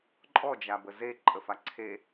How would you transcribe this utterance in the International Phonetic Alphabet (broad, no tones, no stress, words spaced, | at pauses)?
ǃʼɔd͡ʒabə zeǃʼəfa ǀʰe